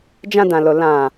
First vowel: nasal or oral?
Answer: nasal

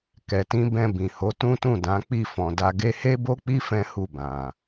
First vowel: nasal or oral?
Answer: oral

